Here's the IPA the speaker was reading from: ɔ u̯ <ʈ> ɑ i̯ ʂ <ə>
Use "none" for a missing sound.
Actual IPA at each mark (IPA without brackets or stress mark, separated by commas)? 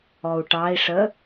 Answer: ʈ, ə